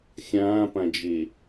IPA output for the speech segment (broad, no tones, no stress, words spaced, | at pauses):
xʲãːpãd͡ʒe